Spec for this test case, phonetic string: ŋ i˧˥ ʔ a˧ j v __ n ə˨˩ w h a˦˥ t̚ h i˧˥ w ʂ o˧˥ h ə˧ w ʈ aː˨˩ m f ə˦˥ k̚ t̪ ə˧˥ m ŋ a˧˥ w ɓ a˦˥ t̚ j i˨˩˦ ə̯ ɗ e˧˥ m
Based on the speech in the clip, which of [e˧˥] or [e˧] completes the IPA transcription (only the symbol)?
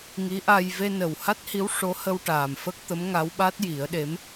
e˧